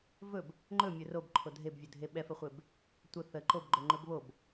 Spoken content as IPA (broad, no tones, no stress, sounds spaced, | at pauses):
v ɵ b | ŋ͡ǃ ɵ mʲ ɵ r o b ǃʰ o dʱ e b vʲ ɵ dʱ e ɓ ɛ f ə χʷ e b | tʷ ə θ ə ǃ o b ɡ͡ǃ ɵ ŋ͡ǃ ɵ b β o b